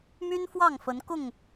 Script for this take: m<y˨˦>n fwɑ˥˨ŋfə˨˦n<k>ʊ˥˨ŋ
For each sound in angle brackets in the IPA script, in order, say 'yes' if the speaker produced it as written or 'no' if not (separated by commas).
no, yes